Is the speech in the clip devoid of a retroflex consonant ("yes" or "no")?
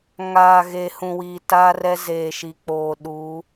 yes